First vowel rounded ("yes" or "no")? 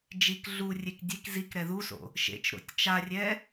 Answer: no